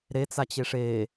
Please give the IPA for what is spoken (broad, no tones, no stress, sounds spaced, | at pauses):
ɾ e t͡s a t͡ɕ e ʂ e